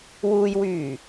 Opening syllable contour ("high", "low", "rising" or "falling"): low